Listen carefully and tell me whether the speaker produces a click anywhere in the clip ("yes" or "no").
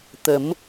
no